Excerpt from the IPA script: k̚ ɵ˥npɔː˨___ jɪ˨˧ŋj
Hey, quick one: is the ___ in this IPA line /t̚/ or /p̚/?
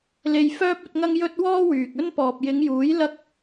p̚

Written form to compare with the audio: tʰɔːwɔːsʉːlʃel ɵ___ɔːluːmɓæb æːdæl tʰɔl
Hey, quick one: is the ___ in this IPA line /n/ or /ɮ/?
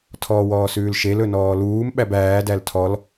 n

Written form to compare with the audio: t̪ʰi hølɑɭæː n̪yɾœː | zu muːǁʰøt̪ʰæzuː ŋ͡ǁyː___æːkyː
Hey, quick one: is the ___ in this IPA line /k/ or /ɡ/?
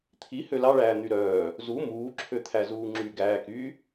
ɡ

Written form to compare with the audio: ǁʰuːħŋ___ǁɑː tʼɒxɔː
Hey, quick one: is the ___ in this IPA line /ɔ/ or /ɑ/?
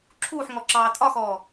ɔ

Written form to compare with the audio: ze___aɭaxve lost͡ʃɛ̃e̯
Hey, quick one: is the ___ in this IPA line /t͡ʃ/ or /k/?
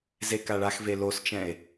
k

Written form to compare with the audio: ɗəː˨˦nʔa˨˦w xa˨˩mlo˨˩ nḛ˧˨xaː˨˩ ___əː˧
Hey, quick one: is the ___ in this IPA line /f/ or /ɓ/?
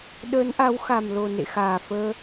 f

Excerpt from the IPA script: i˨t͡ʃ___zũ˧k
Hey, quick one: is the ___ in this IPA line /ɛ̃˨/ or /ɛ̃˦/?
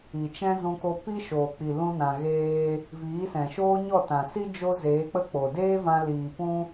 ɛ̃˦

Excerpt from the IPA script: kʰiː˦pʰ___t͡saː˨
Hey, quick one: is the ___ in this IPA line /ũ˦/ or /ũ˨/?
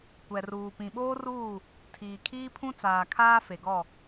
ũ˦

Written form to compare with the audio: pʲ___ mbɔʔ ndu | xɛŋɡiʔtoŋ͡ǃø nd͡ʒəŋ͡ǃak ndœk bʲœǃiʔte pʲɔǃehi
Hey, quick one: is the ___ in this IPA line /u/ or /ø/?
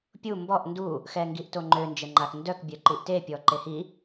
u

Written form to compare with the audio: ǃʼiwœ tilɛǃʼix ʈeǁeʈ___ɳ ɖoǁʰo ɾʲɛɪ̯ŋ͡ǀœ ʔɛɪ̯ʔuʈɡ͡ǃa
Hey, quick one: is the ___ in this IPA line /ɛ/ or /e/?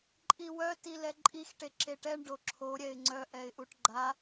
ɛ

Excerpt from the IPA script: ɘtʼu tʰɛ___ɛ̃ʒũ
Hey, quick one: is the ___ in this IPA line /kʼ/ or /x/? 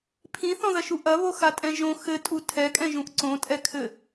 kʼ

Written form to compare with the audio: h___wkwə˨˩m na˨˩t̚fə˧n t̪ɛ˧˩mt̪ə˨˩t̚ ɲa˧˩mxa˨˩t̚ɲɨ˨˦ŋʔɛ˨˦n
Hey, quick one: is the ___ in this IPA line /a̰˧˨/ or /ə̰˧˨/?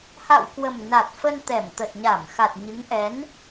a̰˧˨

